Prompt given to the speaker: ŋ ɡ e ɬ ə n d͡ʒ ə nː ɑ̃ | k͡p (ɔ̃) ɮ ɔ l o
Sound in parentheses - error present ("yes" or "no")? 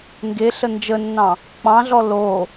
yes